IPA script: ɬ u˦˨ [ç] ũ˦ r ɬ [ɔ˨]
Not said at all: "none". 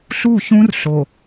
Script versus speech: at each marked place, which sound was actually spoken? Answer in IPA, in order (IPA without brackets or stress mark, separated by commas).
ç, o˨